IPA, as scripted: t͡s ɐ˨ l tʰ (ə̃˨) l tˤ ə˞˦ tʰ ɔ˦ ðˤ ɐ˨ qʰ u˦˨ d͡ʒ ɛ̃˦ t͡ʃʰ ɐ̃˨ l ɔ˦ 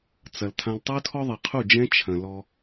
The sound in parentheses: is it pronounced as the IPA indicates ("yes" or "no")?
no